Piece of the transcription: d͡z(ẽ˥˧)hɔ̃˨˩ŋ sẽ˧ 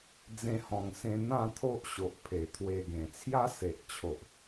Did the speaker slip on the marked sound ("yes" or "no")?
yes